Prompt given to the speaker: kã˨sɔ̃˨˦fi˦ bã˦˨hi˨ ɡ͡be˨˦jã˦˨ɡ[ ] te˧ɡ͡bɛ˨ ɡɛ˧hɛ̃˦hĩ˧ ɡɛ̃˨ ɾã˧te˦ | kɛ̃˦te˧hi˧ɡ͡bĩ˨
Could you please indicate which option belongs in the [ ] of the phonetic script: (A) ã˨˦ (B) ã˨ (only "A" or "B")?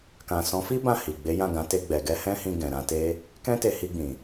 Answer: A